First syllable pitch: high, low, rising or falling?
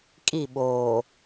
falling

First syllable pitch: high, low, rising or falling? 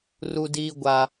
low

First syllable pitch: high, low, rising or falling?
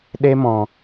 high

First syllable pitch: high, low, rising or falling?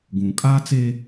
low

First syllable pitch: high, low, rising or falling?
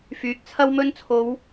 low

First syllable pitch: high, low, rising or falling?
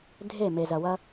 falling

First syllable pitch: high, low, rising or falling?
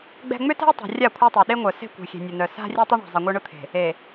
high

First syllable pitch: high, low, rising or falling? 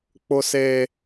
high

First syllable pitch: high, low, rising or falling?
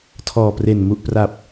low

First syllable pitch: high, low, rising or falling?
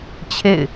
falling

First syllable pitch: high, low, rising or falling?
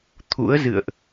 rising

